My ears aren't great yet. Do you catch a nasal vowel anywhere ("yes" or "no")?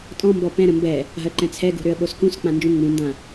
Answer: yes